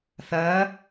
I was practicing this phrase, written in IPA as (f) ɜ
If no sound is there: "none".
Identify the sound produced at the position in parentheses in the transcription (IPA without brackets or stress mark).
θ